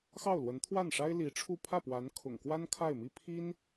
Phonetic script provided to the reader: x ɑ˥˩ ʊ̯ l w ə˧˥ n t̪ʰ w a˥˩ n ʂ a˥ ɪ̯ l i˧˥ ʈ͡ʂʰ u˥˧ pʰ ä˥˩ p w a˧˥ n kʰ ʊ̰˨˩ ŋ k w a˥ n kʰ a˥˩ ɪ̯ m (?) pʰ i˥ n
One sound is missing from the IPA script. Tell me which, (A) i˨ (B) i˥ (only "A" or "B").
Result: B